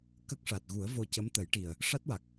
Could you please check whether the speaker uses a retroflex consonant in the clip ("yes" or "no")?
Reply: yes